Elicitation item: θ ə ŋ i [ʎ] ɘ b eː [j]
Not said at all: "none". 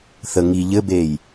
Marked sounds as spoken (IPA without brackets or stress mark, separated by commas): ʎ, j